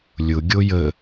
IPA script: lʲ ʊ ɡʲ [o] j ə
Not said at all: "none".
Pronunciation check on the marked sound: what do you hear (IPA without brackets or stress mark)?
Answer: o